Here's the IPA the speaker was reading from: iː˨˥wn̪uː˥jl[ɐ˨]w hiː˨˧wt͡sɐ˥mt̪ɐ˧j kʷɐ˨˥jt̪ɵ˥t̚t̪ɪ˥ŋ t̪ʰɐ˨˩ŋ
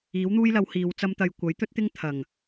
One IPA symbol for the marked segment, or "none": ɐ˨˧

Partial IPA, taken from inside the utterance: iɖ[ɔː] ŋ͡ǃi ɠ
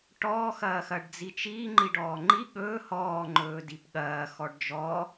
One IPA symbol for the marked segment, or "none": ɔː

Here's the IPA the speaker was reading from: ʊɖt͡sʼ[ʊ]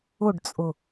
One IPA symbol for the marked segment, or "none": ʊ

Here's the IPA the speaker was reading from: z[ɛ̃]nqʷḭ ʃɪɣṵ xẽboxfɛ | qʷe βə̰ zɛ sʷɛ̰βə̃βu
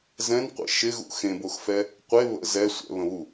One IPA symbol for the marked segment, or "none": ɛ̃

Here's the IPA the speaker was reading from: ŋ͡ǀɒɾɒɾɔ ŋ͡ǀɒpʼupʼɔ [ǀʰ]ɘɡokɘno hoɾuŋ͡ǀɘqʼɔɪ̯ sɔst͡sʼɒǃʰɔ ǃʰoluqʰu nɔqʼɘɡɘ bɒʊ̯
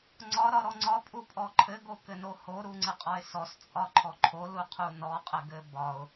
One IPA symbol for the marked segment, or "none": ǃʰ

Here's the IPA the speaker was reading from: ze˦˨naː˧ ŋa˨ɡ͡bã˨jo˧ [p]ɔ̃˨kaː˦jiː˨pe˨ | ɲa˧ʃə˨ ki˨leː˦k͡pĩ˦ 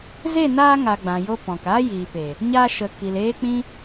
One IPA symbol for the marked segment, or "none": p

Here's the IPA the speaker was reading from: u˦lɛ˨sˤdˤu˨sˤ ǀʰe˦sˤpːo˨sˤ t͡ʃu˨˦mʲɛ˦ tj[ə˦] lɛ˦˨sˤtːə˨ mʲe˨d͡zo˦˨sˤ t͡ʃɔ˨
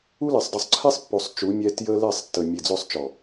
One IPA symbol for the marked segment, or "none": ə˦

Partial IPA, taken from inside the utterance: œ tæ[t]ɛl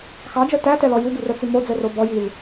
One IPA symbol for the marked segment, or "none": t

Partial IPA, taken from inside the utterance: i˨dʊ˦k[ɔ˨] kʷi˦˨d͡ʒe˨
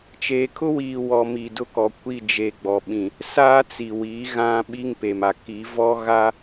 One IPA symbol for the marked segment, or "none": ɔ˨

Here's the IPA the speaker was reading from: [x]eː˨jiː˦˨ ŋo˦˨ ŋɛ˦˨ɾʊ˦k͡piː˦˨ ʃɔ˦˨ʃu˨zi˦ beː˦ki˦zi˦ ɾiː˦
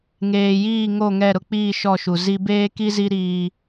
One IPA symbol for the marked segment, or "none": ŋ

